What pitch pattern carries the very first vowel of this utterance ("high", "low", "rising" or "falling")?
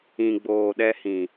low